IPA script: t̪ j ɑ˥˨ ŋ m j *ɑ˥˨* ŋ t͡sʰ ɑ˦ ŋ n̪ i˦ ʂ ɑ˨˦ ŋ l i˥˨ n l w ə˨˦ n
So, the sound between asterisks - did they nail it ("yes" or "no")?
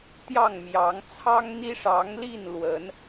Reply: no